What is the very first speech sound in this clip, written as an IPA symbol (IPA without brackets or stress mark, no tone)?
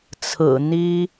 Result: t͡sʰ